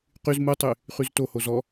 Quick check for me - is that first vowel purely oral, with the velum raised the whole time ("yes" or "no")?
yes